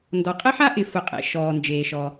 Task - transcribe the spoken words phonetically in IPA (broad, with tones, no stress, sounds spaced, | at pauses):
n d ɔ˩ qʼ ɪ˥ ħ a˥ ʔ ɪ˩ f ʊ˩ qʼ ḛ˩ ʃ ɔː˩ n d͡ʒ eː˩ ʃ ɔ˩